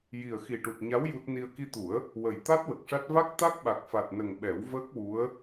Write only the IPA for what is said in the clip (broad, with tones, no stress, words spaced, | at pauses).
ji˨˩ə̯xi˨˩ʈu˨˩t̚ ɲa˧˥w ju˦˥t̚ ni˧ə̯ ki˧t̪u˨˩˦ə̯ | wə˨˩j t̪a˦˥t̚ wə˨˩k̚ʂa˦˥t̚ va˦˥k̚ t̪a˦˥k̚ɓa˨˩k̚fa˨˩t̚nə˨˩ŋ ɓɛ˨˩˦wvəː˦˥k̚wu˧˥ə̯